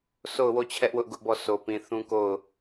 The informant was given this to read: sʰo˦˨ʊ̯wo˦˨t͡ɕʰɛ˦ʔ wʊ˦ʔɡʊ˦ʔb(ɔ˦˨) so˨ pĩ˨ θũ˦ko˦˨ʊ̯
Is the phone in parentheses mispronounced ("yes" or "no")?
no